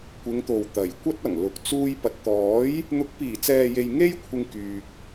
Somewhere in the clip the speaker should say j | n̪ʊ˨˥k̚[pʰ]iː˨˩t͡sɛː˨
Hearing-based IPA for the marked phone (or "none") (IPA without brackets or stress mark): p